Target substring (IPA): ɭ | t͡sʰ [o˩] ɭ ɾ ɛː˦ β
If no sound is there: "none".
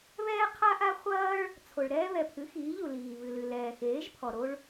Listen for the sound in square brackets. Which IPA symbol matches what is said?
o˩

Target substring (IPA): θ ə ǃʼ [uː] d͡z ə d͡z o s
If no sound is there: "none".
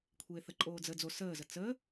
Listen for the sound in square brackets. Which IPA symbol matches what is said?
oː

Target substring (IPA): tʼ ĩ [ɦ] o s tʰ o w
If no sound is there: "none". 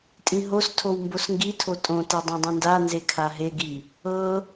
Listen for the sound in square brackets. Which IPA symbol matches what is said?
ɦ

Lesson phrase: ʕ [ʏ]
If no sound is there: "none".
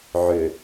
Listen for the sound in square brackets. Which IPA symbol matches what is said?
ʏ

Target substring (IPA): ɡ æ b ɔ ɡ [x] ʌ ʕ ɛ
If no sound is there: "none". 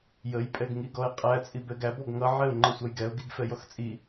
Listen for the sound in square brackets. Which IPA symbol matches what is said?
ŋ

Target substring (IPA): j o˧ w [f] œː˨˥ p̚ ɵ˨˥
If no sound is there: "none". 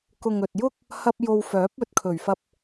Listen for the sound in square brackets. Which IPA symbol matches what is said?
f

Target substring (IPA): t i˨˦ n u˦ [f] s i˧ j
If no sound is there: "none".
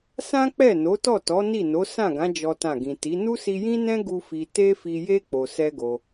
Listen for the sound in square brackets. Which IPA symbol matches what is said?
none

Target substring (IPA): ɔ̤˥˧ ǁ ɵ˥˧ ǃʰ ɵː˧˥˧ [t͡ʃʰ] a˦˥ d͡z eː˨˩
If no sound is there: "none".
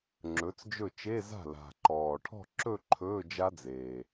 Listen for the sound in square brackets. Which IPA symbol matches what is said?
d͡ʒ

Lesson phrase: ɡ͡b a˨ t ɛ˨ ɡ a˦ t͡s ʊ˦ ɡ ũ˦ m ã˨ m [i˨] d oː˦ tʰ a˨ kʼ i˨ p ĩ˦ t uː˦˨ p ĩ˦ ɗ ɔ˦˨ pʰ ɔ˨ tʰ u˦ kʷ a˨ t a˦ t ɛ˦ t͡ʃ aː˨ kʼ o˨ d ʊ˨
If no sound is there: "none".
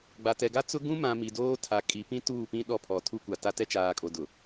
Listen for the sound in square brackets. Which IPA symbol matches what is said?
i˨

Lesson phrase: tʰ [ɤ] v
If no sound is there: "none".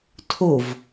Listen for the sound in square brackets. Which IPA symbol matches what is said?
o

